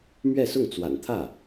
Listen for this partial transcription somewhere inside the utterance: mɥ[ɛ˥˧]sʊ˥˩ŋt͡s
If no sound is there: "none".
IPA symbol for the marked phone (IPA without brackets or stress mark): ɛ˥˧